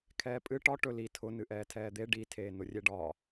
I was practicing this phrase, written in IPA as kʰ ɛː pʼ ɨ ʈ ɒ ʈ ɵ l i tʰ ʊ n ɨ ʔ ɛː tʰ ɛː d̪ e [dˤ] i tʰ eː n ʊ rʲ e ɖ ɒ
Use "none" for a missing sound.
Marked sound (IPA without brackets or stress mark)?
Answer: ɖ